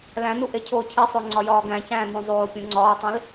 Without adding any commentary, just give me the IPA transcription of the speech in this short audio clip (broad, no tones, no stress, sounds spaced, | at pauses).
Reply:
l æ̃ n u ʔ e cʰ oː cʰ i sˤ o ŋ͡ǀ ɒ j ɒː ɡ æ̃ c æ̃ː n ũ zˤ oː pʲ ũ ŋ͡ǀ ɒː tˤ ĩ l